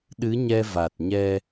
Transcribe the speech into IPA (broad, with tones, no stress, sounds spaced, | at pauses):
ɗ ɨ˧˥ ɲ ɛ˧ v a˨˩ t̚ ɲ ɛ˧